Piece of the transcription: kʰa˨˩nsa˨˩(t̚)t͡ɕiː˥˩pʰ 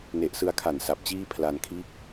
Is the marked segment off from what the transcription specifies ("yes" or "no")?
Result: yes